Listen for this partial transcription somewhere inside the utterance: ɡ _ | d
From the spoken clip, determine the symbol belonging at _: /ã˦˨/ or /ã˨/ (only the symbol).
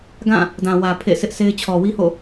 ã˦˨